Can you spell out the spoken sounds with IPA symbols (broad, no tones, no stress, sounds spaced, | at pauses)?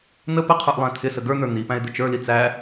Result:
n̪ ə p ə qʰ ə˞ ʔ lˠ æ̃ t̪ʰ ɪ s ə ɡ ə˞ n̪ ə˞ n̪ i p æ̃ ɪ̯ d̪ ʊ t͡ʃ ə˞ l i t͡s æ